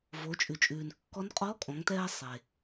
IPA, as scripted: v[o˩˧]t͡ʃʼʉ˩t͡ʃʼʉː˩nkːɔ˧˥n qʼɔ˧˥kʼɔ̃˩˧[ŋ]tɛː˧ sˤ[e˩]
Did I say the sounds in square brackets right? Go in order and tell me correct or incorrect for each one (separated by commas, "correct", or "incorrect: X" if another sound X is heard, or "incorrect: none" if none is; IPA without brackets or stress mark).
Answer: correct, correct, correct